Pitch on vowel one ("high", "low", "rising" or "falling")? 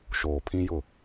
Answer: low